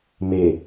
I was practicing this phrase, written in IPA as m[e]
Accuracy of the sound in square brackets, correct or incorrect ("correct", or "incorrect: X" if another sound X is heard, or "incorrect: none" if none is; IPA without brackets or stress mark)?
correct